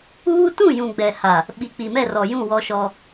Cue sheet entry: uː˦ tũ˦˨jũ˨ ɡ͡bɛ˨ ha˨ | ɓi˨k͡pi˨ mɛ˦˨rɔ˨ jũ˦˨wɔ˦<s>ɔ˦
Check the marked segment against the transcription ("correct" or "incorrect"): incorrect